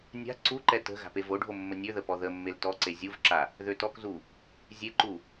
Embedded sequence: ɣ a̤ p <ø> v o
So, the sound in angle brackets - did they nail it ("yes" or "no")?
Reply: no